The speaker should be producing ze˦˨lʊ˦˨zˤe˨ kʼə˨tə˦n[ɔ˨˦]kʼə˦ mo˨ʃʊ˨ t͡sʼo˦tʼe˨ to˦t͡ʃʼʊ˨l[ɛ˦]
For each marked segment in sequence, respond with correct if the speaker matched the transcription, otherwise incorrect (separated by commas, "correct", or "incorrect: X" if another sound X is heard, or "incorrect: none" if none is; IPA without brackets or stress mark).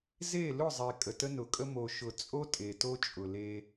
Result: incorrect: ʊ˨˦, incorrect: e˦